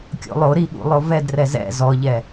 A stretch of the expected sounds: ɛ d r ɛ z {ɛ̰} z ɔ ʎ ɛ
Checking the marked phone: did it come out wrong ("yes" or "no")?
no